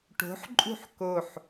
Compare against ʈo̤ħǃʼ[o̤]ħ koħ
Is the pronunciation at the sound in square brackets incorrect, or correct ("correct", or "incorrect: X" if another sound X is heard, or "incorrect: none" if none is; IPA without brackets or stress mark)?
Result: incorrect: ṳ